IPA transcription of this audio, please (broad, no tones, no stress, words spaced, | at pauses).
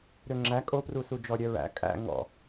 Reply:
ɾøŋ͡ǁæ kʼoprusud͡ʒɔ ɾʲœɹæ̰ kʼæ̰ ŋɔ̰